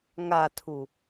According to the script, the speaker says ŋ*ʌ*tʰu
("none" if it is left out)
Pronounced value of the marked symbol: a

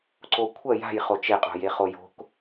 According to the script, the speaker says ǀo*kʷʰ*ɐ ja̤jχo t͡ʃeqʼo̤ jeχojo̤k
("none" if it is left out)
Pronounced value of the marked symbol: kʷʰ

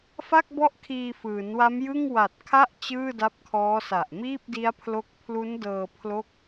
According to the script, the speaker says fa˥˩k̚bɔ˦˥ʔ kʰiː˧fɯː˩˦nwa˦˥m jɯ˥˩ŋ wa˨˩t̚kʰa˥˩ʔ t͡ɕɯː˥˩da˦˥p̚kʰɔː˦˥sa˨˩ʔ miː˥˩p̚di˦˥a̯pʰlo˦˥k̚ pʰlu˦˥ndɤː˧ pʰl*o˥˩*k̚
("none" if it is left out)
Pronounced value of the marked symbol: o˥˩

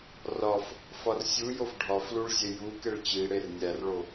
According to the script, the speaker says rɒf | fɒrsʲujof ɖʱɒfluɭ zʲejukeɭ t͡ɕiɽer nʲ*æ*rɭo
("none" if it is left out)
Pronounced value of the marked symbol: æ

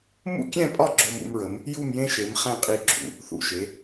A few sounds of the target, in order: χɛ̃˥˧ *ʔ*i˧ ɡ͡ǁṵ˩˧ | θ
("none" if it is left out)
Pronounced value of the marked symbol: qʼ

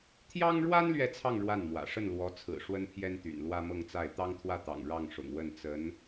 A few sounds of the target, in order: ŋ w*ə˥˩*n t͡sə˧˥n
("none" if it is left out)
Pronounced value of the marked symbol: ə˥˩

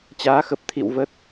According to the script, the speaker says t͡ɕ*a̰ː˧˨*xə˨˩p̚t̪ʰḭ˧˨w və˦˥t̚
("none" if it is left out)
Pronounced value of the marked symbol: aː˨˦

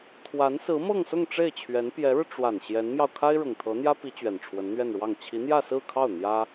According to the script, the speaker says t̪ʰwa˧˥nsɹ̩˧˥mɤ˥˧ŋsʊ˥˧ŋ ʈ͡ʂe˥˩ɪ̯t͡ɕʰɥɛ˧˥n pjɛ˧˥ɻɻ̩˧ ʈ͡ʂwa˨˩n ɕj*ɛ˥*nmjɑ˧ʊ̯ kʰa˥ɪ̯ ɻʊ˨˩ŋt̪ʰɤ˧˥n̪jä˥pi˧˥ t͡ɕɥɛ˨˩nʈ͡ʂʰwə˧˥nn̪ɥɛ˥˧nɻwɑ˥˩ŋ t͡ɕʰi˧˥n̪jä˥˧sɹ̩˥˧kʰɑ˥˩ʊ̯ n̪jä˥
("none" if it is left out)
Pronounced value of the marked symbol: ɛ˧˥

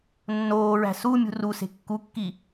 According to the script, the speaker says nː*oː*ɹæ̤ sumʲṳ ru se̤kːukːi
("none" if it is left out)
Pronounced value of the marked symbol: oː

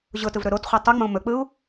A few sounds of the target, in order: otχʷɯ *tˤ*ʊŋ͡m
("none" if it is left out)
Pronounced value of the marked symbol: tˤ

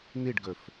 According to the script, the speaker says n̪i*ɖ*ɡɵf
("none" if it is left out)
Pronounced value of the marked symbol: ɖ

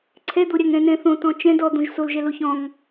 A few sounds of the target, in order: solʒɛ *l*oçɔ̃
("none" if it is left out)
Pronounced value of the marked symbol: l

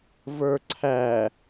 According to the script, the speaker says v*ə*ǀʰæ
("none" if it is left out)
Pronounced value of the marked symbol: ə˞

